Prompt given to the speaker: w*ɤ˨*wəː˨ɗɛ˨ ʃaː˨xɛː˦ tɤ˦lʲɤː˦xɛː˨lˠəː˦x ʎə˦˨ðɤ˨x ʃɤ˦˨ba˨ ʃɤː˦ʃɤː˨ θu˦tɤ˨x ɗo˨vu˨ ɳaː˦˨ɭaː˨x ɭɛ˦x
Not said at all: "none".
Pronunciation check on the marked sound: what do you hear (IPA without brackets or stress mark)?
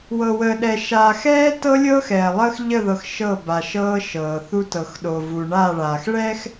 ɤ˨